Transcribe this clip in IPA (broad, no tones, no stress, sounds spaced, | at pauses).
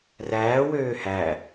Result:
r æː w øː h æ